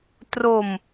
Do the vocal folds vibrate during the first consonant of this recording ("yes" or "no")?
no